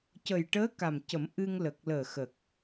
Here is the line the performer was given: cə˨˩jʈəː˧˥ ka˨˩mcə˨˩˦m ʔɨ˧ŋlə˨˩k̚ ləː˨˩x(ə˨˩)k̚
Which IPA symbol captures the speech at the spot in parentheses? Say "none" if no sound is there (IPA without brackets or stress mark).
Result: ə˨˩